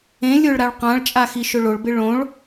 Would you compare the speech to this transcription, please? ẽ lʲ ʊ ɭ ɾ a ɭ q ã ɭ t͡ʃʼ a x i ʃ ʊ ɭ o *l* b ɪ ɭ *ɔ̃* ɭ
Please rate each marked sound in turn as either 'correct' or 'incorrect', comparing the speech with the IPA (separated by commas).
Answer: incorrect, incorrect